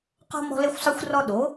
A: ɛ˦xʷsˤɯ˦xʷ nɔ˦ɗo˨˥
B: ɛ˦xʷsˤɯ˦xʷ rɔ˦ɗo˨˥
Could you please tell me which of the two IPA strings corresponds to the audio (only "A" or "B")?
B